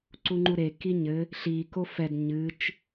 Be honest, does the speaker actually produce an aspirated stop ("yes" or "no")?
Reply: no